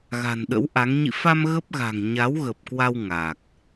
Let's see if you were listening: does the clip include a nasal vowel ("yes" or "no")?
no